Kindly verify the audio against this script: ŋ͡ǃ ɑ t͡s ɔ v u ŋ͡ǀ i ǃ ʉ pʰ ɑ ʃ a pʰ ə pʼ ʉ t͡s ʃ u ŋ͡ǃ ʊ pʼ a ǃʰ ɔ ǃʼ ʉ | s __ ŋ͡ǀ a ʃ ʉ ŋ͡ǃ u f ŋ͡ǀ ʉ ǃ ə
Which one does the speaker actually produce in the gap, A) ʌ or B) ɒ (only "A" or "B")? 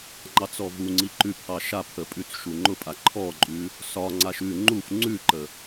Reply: B